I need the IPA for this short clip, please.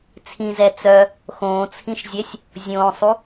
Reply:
t͡sʰ ĩ z ɛ t͡s œ | x õː t͡sʰ ĩ ʃ zʲ ɛ sʲ | zʲ õː sˤ u

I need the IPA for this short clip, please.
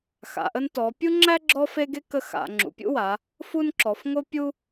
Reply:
x a̰˩˧ ʔ ə˦ n t ɔ˩˧ pʲ u˦ ŋ͡ǁ æ˦ ɡ͡ǁ ɔ˦ f e˦ ɡ e˦ k ə˦ x a̰˩˧ ŋ͡ǁ ṵ˩˧ pʲ ṵ˦ w a˩˧ | f u˦ n ǁ ɔ˩˧ f ŋ o˦ pʲ u˦

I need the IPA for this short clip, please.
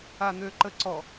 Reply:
a n̪ ø ǃ ə ǀ ɔ

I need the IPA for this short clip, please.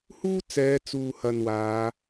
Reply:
h uː˥ t͡s ɛː˨˧ t͡s uː˨ h ɐ˨ n w aː˨˧

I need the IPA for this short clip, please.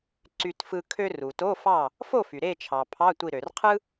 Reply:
ǀ y˧ t f ɯ˧ kʰ ø˧ r u˩ t o˧˥˧ f ɑ˥˨ | f o˥˨ f y˩ ɾ e˥˨ t͡ʃʰ ɑ˩ pʰ ɑ˧˥˧ tʷ i˧˩ ɾ ø˩ r qʰ ɯ˥

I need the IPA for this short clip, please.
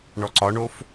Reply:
ɳ ɔ ǀ ɒ ɳ o f

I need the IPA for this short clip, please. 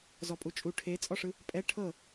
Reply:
z ɔ pʼ u t͡ʃʼ u ʈʰ e t͡sʼ ɔ ʂ ɯ | pʼ ɛ ʈʰ ɤ

